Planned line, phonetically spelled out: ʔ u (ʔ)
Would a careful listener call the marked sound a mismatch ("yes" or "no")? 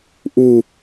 yes